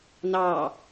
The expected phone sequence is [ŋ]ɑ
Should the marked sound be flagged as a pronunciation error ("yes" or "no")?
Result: yes